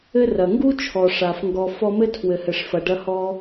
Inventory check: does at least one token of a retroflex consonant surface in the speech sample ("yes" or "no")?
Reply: yes